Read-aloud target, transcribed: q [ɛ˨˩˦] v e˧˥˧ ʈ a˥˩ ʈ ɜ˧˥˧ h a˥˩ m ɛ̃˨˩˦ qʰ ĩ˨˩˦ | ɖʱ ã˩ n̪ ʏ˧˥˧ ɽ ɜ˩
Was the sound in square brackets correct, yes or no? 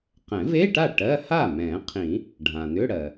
no